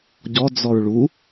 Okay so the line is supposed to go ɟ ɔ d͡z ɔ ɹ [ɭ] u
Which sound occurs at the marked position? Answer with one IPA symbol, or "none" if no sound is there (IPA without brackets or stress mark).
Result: ɭ